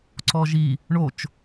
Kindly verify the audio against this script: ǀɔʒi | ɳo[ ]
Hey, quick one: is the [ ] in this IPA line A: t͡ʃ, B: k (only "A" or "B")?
A